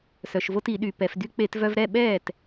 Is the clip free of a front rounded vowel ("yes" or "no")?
no